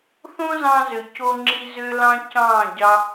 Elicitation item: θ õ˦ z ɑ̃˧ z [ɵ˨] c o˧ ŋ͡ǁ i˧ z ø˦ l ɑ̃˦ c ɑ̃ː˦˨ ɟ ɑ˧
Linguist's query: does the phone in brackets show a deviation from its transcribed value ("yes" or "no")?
yes